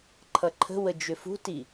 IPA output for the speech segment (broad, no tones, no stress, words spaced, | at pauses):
ǃʰʌǃʰə̤wə d͡ʒʏfṳti